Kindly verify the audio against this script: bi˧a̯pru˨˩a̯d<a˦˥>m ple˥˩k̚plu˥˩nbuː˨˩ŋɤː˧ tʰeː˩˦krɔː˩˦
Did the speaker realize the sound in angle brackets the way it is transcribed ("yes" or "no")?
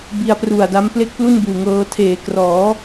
yes